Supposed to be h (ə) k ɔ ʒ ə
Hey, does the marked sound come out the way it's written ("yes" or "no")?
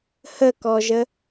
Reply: yes